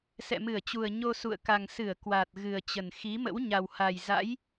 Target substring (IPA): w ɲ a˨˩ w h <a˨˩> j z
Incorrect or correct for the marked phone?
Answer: correct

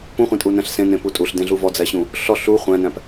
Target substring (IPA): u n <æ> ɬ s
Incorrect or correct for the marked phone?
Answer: incorrect: æ̃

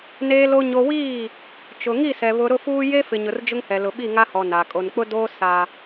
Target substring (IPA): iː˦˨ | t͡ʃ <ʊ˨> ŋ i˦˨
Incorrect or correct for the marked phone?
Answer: correct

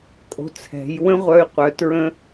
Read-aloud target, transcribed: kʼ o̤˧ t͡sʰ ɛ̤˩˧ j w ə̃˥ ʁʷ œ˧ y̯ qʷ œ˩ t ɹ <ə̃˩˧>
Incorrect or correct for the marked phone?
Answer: incorrect: ə̃˧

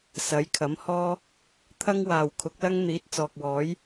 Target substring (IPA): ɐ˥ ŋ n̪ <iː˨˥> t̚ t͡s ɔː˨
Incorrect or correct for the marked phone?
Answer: correct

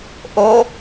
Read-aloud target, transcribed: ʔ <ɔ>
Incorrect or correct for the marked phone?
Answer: incorrect: o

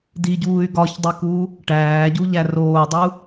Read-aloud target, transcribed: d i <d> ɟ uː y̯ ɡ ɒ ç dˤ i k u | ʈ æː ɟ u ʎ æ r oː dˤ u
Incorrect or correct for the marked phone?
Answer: incorrect: none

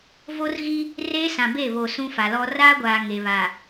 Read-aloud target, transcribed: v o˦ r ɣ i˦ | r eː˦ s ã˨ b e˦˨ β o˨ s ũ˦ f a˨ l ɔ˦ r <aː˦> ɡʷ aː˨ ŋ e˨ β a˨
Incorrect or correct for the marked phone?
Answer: correct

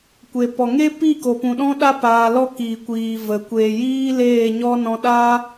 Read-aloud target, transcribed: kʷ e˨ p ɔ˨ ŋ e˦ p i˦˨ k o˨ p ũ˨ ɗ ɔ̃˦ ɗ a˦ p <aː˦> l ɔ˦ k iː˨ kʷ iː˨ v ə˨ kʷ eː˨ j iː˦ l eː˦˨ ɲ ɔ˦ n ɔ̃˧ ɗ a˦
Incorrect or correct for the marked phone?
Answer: incorrect: aː˧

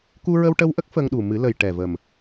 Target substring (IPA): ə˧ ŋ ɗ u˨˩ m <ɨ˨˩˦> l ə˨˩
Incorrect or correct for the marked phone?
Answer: correct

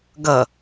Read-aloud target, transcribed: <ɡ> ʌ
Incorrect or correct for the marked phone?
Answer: correct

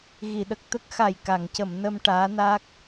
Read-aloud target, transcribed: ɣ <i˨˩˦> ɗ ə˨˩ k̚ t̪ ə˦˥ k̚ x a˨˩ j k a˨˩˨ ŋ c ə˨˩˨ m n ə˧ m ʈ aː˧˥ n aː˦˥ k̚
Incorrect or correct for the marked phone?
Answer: incorrect: i˨˩˨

